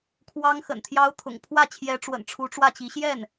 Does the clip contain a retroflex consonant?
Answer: yes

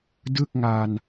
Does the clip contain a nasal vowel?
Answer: no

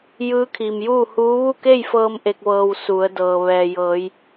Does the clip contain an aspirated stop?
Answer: yes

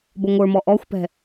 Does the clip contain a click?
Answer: no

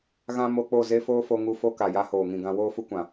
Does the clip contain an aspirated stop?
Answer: no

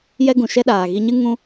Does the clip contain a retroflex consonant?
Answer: no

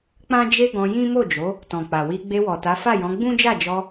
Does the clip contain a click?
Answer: no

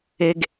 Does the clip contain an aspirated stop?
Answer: no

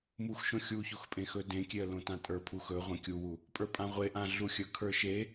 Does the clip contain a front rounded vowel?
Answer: no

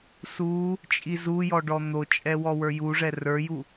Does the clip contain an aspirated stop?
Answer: no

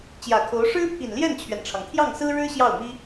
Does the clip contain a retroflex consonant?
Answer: yes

